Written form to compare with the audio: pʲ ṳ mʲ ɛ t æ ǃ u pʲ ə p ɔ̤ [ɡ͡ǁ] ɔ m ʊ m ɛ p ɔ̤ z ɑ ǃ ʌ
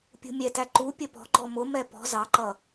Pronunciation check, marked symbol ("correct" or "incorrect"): incorrect